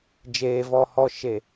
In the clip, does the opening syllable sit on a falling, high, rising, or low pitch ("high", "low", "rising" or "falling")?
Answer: low